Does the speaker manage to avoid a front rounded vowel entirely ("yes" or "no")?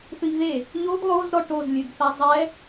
yes